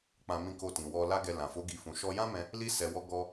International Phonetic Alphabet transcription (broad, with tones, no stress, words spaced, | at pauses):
k͡pã˧mĩ˧ ko˧tĩ˨ wɔ˧ la˦ɡɛ˧ lã˨fo˨˦ ɡi˧fũ˧ ʃɔ˧jã˦mɛ̃˧ | li˧sɛ˨ wɔ˧ ɡɔ˧